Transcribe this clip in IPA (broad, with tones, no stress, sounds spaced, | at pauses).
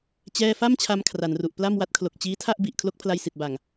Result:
t͡ɕ ɛː˥˩ f a˥˩ m t͡ɕʰ a˧ m kʰ r a˩˦ n r u˨˩ ʔ p l a˥˩ m w a˦˥ t̚ kʰ l o˨˩ k̚ t͡ɕ iː˦˥ tʰ a˥˩ ʔ b i˨˩ ʔ kʰ l o˦˥ k̚ pʰ l a˧ j s i˨˩ t̚ b a˨˩ ŋ